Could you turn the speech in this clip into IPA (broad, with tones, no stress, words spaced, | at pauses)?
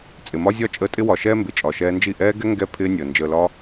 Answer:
t͡sʼɪ˨mɒ˦zʲɒ˦t͡ʃʼəː˧ tʼɪ˦wɒ˨ʃɛː˦ mbɪ˨t͡ʃʼɒ˨ʃɛː˧nd͡ʒi˦˨ ʔɛː˦ɡɛ˦ ŋɡɛ˦ pʰɪː˦nʲəː˨ nd͡ʒəː˨lɒ˧